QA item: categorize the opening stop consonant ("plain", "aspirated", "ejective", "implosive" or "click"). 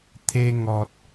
aspirated